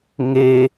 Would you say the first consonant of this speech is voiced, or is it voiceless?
voiced